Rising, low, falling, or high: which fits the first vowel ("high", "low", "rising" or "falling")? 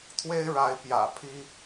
high